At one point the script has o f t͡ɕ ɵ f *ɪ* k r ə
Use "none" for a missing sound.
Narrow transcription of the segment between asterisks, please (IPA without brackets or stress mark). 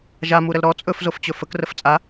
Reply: ə